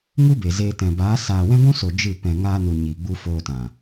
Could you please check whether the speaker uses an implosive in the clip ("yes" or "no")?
no